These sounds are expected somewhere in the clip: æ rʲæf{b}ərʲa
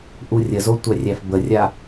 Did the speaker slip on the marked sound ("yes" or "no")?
no